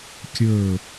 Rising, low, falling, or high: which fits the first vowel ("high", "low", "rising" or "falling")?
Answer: falling